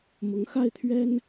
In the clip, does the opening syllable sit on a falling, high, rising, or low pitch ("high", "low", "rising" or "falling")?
rising